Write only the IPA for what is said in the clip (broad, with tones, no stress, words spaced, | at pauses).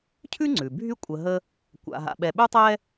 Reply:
cʰʉ˥ŋ͡ǀʉ˩bʱy˦ kʷʼə˨ɦə˦ | kʷa̰˨ɦa̰˨ ɓɛ˨ɓʉ˥tˤɛ˥